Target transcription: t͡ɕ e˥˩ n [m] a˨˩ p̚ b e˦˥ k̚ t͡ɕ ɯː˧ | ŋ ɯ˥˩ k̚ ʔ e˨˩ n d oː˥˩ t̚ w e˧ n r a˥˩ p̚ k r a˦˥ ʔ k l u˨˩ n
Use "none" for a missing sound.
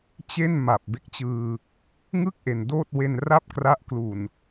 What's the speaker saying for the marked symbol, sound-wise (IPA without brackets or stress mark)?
m